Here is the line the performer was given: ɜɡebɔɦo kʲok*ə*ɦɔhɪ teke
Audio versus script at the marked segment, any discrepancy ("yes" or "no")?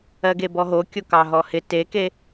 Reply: yes